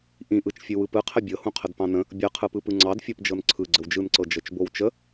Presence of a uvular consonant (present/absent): present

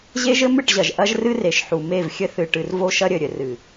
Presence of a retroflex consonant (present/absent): present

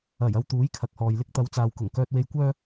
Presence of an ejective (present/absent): absent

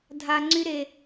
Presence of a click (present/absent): present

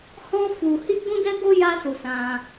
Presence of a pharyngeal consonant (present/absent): absent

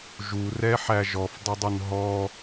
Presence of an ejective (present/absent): absent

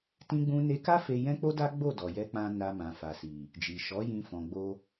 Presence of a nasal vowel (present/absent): present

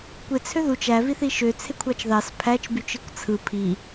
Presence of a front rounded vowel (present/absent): present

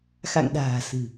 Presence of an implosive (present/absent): present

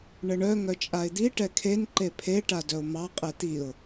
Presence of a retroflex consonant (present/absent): present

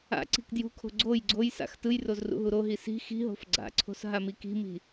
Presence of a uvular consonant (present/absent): absent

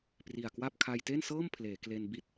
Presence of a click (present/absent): absent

